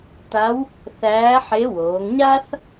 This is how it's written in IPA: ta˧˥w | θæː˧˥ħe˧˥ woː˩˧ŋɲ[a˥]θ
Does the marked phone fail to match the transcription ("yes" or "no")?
no